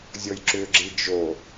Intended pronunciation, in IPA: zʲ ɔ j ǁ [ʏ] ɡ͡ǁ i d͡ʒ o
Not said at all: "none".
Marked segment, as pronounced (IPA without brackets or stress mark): ʏ